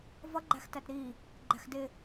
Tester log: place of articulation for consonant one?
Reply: labial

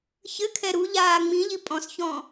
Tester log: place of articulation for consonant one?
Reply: palatal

